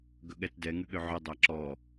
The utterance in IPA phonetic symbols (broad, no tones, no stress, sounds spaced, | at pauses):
ɡ ɵ ɠ ɛ t d ɛ ŋ ʉ ɠ ø ʕ ø dˤ æ ǁ ɔ